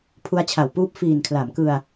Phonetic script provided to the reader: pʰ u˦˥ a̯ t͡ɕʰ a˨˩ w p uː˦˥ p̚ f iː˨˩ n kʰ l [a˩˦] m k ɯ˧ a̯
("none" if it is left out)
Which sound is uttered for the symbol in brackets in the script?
a˩˦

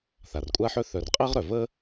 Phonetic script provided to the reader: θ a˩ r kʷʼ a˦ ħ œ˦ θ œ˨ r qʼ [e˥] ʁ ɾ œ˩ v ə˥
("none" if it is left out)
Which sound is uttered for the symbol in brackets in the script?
e˥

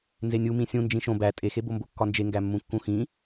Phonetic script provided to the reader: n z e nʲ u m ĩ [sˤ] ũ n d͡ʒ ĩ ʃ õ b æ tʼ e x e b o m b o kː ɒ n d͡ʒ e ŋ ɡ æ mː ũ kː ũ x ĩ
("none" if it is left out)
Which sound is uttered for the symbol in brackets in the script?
sʲ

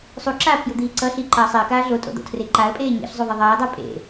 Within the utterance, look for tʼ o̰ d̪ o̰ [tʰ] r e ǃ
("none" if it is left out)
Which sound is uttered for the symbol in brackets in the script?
tʰ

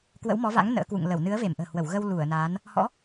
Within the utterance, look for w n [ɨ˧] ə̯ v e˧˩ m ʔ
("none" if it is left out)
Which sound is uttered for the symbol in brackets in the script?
ɨ˨˦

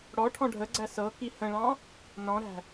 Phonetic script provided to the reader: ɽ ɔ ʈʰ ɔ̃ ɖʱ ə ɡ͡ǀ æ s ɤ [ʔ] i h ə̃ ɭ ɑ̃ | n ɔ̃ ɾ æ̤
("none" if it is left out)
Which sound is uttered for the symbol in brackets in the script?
k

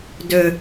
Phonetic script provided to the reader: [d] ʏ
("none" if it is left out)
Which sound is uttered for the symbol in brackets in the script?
d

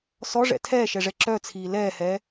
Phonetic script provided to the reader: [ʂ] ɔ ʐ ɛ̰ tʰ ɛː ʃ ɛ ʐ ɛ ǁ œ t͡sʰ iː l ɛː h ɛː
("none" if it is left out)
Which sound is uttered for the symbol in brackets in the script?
s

